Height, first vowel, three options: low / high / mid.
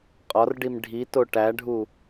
low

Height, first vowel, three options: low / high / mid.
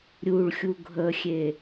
high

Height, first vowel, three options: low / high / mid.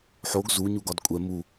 mid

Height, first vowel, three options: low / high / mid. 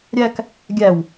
low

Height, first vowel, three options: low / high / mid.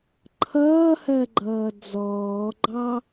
mid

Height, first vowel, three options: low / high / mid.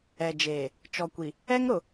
mid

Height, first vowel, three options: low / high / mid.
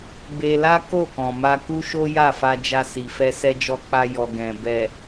mid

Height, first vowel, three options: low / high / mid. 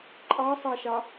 low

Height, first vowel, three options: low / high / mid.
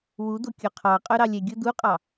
high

